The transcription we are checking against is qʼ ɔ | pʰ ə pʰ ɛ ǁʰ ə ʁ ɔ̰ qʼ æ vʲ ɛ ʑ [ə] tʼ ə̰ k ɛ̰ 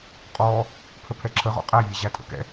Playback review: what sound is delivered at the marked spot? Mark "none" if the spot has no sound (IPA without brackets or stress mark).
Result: æ